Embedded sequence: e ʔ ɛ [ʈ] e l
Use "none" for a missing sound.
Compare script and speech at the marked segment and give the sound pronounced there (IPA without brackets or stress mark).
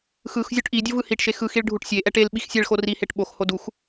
ʈ